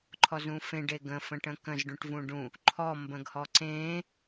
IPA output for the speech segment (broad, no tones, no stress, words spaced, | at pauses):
ǃʰɔzũfẽ ɖeɡə̃ fə̃ʈə̃kə̃z ɖũʈvũɖũ | ǃʰɔ mbə̃ɡhɔǀẽ